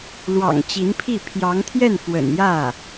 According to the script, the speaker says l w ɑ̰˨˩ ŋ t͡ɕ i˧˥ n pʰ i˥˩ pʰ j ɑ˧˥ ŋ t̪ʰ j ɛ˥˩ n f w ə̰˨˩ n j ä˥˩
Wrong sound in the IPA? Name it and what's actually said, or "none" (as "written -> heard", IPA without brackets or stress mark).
none